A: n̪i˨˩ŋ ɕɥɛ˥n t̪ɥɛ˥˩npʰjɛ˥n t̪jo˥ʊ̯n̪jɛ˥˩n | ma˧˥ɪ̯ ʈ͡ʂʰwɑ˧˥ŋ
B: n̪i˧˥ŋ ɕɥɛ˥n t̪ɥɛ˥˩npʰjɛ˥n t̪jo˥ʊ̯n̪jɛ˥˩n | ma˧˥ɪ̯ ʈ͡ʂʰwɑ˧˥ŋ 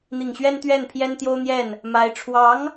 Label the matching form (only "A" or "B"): A